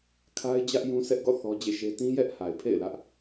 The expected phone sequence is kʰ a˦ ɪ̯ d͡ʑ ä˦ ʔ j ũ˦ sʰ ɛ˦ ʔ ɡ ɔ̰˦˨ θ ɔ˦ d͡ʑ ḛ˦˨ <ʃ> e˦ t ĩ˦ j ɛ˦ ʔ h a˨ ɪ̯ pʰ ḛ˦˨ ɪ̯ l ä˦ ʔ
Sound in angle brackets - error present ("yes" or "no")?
no